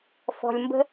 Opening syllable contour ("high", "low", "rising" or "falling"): low